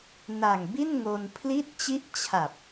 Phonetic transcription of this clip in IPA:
n a˨˩ ŋ b i˥˩ n ŋ o˧ n pʰ l i˥˩ t̚ t͡ɕ i˥˩ ʔ t͡ɕʰ a˨˩ p̚

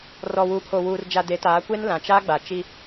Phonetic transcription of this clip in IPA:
r ɔ˨ w u˨ pʰ o˨ w uː˨ r d͡ʒ a˨ d e˨˦ t aː˨˦ kʷ e˦ n l ã˨ t͡ʃ a˦ ɡ͡b a˨ t͡ʃ i˦

